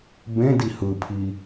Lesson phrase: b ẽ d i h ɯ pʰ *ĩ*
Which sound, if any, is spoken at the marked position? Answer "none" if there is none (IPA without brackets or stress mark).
i